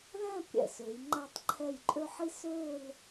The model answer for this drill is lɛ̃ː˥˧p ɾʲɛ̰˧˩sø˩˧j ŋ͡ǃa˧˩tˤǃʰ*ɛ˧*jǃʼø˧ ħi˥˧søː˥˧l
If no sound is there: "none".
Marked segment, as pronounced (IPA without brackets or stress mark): ɛ˧˩